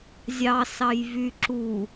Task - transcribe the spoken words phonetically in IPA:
zʲ ɑ s ɑ j v y ǁ u

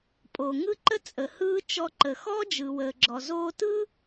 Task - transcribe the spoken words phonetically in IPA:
pʼ oː˩ ŋ ɯ˥ ǃ ə˥ t͡sʼ ə˩ h ɯː˧ t͡ʃ ɔ˧ ǃ ə˩ x ɔ˥ d͡ʒ ɯː˩ w əː˩ ɡ͡ǁ ɔ˩ z oː˧ t ɯ˥

